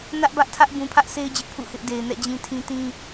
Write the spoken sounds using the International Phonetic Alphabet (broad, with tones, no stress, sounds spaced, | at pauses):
n ä˦ ʔ b ä˦ ʔ tʰ ä˦ ʔ b ũ˨ pʰ ä˦ ʔ s e˦ ɪ̯ d͡ʑ ɪ˦ ʔ pʰ ṵ˦˨ h ɪ˦ ʔ d e˨ ɪ̯ n ɛ̰˦˨ d͡ʑ ĩ˦ tʰ ĩ˦ t ĩ˦